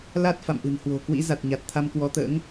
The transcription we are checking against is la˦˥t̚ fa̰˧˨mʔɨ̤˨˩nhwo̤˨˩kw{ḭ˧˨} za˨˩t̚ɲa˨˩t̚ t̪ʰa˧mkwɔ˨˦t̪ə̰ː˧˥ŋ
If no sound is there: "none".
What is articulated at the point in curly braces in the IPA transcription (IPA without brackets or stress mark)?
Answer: ḭ˧˥